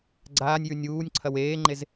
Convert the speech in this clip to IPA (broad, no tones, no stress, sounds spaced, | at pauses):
ɡ͡ǀ aː nʲ j ʉ nʲ uː nʲ ǀʰ ɐ w eː ŋ͡ǃ e z